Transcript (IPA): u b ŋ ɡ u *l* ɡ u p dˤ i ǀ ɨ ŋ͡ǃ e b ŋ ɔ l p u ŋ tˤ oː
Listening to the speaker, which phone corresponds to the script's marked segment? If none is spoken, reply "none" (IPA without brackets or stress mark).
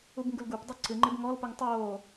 l